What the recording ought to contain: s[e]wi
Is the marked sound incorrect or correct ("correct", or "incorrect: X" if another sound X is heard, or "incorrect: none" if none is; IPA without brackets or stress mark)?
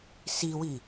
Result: incorrect: i